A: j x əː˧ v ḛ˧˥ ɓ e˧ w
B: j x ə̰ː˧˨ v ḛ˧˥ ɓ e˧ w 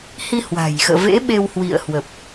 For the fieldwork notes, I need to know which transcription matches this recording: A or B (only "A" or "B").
B